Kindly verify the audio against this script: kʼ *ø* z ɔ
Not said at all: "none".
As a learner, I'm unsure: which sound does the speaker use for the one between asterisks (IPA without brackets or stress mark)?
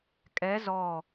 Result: ɛ